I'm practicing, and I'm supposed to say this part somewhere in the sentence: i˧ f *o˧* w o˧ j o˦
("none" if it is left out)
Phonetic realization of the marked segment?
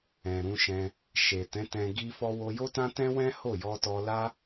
ɔ˧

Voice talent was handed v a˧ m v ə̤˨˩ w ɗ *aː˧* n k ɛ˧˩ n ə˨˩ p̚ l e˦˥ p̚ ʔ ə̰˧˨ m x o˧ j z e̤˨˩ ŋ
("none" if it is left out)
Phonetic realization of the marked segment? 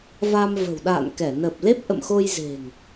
a̰ː˧˨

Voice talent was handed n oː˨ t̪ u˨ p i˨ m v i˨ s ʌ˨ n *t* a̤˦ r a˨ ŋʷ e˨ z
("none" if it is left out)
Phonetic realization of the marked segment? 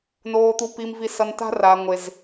t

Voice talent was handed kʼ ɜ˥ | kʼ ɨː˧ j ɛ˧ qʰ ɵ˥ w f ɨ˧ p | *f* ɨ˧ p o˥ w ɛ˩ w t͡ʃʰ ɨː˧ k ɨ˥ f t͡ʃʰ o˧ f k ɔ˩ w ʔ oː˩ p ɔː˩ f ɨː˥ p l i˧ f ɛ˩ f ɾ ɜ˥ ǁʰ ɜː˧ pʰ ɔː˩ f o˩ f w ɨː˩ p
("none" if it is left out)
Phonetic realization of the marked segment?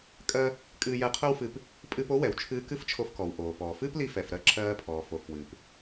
pʼ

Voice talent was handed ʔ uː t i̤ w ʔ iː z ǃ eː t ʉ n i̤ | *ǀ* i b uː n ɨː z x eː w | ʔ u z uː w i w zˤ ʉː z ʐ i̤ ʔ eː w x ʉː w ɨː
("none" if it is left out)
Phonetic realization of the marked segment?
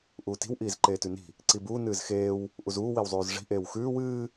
ǀ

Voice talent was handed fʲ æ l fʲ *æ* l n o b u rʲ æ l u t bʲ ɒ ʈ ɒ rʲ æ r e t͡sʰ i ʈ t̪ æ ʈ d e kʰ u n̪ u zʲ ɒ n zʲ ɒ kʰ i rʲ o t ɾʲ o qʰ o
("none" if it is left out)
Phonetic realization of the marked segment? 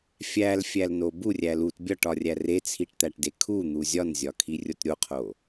æ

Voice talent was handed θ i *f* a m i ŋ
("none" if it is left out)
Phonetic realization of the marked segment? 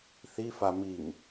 f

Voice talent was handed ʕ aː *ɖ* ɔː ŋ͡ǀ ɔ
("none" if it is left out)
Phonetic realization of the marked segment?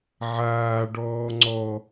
ɖ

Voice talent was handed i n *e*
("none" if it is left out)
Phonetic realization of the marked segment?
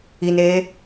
eː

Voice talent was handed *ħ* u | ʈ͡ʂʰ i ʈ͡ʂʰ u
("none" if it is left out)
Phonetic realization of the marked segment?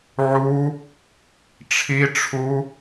ʕ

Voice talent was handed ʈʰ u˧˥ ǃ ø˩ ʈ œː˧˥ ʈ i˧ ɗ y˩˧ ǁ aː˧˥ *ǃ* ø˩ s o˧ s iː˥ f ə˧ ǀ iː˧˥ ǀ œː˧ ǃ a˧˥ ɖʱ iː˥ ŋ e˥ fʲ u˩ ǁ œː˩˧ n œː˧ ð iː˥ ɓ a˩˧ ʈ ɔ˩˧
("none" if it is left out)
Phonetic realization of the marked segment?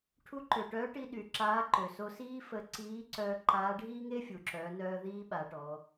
ǃ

